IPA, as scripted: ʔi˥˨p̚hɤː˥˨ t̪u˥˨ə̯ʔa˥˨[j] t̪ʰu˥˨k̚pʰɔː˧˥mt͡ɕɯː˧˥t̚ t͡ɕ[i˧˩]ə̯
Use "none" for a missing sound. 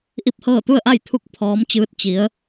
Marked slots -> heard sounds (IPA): j, i˩˧

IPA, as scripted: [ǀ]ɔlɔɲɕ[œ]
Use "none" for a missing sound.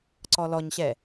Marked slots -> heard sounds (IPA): ǀ, ɛ

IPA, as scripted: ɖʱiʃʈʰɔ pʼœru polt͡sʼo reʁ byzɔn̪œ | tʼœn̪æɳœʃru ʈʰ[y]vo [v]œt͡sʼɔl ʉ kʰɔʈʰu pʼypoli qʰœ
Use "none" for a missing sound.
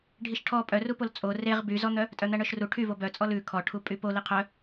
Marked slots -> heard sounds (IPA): y, b

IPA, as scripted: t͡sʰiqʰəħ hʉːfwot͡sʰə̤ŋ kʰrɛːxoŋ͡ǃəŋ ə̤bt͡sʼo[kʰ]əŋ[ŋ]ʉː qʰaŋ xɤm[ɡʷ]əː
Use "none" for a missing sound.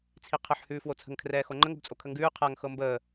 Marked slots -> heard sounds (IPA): kʰ, ɡ, b

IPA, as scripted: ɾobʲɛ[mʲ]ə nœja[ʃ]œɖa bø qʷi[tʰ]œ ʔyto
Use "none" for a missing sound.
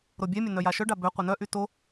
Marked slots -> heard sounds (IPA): mʲ, ʃ, n

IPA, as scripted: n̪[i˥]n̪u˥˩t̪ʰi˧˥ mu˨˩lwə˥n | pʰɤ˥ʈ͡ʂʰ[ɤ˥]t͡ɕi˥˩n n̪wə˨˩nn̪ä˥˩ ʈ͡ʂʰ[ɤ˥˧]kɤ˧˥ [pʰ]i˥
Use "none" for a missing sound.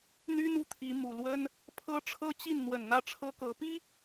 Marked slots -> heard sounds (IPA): y˥, ɤ˥, ɤ˥, p

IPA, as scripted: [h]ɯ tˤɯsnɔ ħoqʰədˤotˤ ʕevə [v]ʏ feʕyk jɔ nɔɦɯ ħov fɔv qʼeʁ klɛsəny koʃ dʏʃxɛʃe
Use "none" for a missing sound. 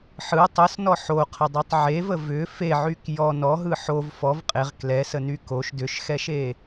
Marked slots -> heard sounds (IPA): ħ, v

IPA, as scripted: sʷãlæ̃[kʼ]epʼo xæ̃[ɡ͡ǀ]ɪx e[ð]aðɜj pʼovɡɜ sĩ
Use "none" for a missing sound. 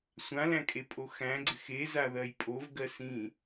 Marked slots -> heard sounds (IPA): kʼ, ɡ͡ǀ, z

